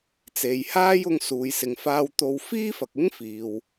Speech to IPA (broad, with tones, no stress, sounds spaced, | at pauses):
t͡s e˨ j h aː˥ j ʊ˧ ŋ s uː˨ j s ɪ˨ ŋ f aː˧ w t̪ o˧ w f iː˥ f ɐ˨ k̚ ɪ˥ ŋ f iː˨ w